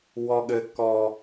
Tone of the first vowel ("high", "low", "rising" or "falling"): high